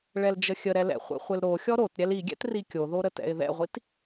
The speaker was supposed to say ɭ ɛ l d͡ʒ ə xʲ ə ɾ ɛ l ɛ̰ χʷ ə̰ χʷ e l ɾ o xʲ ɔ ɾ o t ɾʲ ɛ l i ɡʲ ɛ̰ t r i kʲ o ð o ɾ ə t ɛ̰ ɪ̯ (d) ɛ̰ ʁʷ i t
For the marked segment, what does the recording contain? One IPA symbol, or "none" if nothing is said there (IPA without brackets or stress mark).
ð